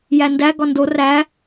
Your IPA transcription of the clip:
j æ n d æ ɡ ɒ n d o r æ

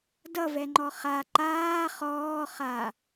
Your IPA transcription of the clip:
d ʌ v ɛ ŋ͡ǃ ɔ χ a ǃ aː χ ɔː χ a

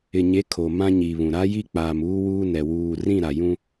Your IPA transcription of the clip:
ɪ˨ ɲ e˨˦ kʰ o˨ m ã˦ ɲ i˨ β ũ˨ ɾ a˦ j i˦ k͡p aː˨ m uː˦ w uː˦ n ɛ˨ w uː˨ r ĩ˦˨ ɾ a˨ j ũ˦

